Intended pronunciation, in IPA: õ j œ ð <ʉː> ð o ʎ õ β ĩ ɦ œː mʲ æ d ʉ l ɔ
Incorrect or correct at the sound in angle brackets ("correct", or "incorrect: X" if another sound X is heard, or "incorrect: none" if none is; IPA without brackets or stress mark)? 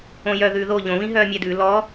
correct